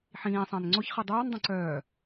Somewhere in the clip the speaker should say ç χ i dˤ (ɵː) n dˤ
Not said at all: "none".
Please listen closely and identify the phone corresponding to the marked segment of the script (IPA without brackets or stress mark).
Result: œː